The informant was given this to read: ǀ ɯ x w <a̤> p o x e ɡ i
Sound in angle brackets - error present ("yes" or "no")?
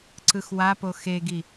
yes